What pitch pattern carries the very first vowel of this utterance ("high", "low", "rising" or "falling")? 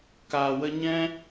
low